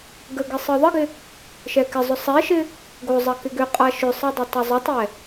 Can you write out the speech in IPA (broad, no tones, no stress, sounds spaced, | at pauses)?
ɡ ə ɡ ɪ sˤ ɯ ðˤ ɪ ɡ ɪ | ʃ ɛ k ɪ zˤ ʏ sˤ ɛ ʃ ɪ | ɡ o zˤ ɐ k ɪ ɡ ʏ qʼ a ʃ ʏ sˤ ɯ dˤ ɐ tˤ o zˤ ʏ tˤ ɛ